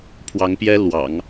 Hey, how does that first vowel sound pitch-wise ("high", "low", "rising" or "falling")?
rising